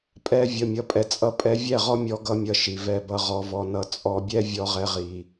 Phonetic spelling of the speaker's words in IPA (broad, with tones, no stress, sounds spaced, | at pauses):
pʼ ɛ˧ vʲ ʌ˨ mʲ ʌ˨ pʼ ɛ˨ t͡sʼ ʌ˧ pʼ ɛ˧ vʲ ɛ˦˨ ʁ ɔ˦ mʲ ɔ˦ ɡ ʌ˦ mʲ ʌ˧ ʃ i˨ v ɛ˨ b ʌ˨ ʁ ɔ˨ v ɔ˨ n ʌ˨ t͡sʼ ɔ˧ bʲ ɛ˦ vʲ ɔ˧ ʁ ɛ˧ ʁ i˨